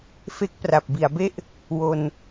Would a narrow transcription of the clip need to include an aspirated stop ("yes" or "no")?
no